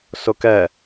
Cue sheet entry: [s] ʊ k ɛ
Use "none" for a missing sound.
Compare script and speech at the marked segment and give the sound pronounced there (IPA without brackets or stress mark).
s